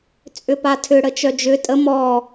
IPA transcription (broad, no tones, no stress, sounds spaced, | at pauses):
t͡sʼ ʏ p a tʰ ʏ ɽ ə t͡ʃ œ d͡ʒ ʏ tʼ ə m ɔ